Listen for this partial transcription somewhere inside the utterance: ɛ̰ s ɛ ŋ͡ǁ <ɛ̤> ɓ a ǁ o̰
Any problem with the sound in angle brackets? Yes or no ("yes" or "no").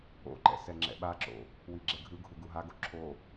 yes